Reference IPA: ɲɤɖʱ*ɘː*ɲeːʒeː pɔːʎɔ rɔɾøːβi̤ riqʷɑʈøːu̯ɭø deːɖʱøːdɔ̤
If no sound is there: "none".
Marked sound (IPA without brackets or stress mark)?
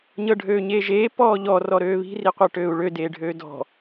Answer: øː